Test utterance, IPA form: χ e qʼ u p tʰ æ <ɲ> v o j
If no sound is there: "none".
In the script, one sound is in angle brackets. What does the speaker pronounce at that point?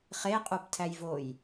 j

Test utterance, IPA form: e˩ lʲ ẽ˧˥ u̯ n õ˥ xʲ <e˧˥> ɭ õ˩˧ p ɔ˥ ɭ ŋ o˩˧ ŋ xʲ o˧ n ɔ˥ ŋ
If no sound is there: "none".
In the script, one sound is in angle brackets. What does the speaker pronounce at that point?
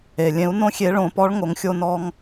e˧˥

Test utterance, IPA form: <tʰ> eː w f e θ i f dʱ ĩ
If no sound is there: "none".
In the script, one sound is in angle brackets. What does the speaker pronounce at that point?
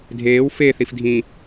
dʱ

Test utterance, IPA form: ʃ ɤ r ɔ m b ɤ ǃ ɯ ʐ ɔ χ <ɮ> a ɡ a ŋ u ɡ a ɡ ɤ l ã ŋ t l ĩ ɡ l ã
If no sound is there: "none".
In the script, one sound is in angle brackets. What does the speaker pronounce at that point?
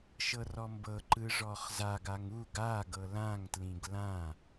z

